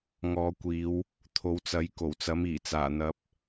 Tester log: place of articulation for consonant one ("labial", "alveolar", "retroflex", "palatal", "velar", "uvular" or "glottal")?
velar